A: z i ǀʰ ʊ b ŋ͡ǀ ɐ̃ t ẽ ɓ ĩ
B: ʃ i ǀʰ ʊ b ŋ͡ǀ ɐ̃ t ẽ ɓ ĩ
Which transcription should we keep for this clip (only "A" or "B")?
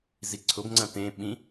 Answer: A